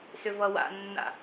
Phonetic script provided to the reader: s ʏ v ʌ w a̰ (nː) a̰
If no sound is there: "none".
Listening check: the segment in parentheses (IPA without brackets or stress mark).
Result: nː